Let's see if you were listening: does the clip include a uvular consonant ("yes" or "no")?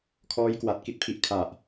no